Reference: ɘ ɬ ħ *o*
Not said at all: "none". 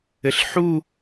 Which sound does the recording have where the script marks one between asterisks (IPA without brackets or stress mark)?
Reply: u